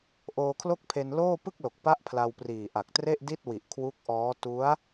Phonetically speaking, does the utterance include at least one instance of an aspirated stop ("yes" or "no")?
yes